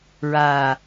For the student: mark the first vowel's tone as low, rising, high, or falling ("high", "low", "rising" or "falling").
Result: low